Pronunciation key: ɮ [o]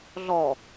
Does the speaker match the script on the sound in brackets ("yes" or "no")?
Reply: no